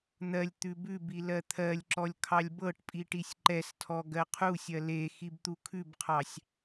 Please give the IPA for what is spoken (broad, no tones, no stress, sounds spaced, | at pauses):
n̪ ɜ lʲ t̪ ʉ b ʉ b i l ɜ t̪ʰ ɜ lʲ ǁ ɔ lʲ kʰ ɑ lʲ b ɤ ʈ pʼ i ʈ i sʲ ǃ ɛ s tʰ ɔ ɡ ɜ qʰ u sʲ ɜ l e x i b t̪ u kʰ ʉ b qʰ ɑ sʲ